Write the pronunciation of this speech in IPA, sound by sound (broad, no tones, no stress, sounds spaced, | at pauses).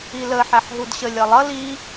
i l ə ħ æ ħ ɦ u d ɕ ə lʲ ʌ lˠ ʌ l i